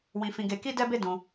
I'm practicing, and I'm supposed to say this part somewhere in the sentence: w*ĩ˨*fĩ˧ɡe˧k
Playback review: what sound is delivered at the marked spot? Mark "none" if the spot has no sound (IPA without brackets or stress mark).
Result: ĩ˧